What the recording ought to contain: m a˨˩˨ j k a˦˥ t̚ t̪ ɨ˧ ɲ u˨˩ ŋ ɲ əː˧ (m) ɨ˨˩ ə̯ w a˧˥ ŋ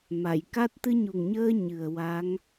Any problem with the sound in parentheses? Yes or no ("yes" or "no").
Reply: yes